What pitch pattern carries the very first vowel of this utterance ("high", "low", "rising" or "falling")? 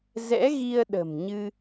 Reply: rising